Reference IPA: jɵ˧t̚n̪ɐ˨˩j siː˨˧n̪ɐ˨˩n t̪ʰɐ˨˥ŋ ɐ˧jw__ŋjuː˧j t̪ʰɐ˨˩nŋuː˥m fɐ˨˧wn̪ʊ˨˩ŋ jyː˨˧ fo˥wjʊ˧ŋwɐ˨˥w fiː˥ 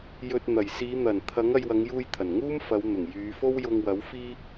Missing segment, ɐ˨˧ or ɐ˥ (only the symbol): ɐ˨˧